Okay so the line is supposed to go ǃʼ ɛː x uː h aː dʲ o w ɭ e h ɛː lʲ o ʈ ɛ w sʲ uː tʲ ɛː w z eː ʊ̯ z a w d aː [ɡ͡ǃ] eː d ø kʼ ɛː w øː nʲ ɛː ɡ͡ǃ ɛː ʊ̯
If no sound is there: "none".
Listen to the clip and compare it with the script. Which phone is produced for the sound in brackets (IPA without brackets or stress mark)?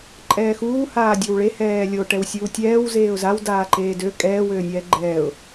ǃ